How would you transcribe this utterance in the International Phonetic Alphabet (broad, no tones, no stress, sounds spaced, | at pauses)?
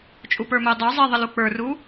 t͡ʃʼ u p ə˞ m ɵ e̯ dˤ ɵ w zˤ i ðˤ ə l u k͡p ə˞ r u